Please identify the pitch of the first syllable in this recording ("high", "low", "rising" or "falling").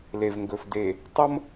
low